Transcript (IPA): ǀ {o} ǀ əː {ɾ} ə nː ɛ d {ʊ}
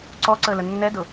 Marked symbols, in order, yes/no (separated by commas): no, no, yes